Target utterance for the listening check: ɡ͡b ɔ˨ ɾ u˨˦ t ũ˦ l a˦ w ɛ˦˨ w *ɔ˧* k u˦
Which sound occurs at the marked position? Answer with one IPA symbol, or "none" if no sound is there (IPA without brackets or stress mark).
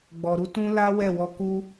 ɔ˧